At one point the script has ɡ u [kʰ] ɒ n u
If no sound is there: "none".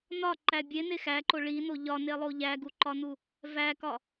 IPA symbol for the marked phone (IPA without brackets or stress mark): ǃ